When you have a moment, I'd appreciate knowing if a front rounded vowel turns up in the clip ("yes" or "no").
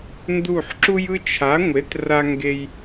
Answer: no